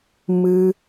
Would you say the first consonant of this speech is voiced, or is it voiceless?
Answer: voiced